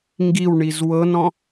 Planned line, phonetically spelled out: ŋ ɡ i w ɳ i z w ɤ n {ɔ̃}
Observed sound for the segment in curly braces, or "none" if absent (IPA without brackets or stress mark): ɔ̃